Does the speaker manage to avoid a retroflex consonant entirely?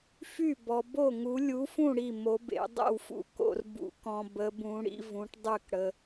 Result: no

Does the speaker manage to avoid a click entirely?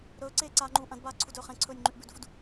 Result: no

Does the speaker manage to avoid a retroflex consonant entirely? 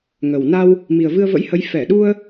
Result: yes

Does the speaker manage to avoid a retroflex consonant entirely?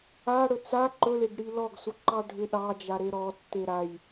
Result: no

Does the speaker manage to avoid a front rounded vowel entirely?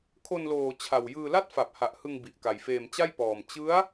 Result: yes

